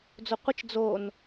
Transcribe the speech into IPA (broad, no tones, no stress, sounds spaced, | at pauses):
d͡z o qʷ ɪ t͡ʃ d͡z o n